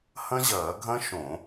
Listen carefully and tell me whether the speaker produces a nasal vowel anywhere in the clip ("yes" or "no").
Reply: yes